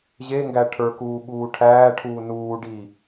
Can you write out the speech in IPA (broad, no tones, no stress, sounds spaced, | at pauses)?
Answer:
ʑ e ŋ ɡ æ ʈʰ ə˞ k uː ɓ uː ʈʰ æː ʈʰ uː n uː ɖ i